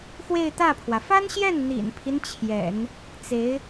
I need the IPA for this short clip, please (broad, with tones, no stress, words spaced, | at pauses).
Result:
xwe˥˧ɪ̯t̪ä˥˩pʰwä˩ fa˥nɕjɛ˥˩n n̪ḭ˨˩npʰi˦n t͡ɕʰjɛ̰˨˩˦n | t͡se˧˥ɪ̯